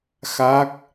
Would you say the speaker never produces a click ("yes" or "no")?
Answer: yes